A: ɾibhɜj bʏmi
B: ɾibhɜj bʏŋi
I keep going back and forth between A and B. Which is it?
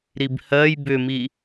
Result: A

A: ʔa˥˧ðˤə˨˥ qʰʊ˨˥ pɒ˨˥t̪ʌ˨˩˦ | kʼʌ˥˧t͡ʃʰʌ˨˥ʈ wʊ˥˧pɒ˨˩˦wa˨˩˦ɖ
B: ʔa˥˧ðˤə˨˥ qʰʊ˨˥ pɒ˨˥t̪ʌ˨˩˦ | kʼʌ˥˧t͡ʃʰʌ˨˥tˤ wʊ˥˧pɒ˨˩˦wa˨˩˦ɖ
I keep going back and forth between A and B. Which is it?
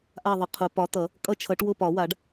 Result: A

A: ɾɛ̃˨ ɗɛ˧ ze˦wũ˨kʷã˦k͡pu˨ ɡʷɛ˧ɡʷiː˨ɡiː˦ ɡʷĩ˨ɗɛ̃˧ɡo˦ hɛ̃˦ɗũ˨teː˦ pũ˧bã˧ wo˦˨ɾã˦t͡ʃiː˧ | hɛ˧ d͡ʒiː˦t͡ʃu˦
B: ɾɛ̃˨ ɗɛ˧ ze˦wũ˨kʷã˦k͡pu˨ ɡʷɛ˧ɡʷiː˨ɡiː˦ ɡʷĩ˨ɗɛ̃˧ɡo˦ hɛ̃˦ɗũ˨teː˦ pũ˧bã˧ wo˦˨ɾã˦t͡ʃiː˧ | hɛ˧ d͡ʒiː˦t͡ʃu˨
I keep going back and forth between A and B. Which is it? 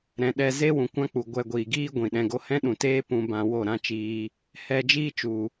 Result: B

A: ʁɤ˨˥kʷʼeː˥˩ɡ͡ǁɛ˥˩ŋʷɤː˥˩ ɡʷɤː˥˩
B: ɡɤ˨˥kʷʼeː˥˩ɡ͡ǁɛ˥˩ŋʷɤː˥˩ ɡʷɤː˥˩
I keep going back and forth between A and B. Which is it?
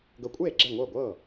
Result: B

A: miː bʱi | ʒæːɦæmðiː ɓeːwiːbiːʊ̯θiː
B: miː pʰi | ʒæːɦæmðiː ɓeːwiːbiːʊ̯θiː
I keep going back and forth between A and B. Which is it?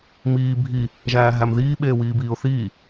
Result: A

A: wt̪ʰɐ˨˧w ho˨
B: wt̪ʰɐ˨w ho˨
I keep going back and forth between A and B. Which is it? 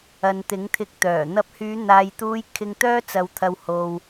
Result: B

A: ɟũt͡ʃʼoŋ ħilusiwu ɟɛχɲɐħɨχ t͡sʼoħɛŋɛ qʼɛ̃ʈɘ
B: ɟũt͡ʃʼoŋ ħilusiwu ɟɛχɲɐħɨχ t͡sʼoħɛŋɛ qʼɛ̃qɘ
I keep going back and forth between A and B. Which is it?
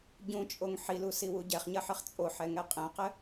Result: B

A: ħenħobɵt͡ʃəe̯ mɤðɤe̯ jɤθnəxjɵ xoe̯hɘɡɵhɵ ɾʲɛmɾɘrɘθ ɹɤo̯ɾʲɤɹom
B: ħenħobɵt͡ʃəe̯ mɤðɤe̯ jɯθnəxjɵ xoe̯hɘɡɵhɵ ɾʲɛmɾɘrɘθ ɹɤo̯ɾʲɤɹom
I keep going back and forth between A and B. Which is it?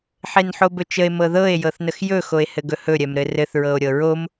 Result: A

